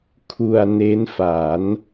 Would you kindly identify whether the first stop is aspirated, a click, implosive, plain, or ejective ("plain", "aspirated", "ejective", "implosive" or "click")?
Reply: aspirated